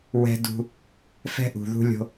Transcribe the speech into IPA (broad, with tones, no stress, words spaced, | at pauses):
wɛ̤˦ dṳ˦ | fɛ̤˦ʔṳ˨ðṳ˦lʲo̤˦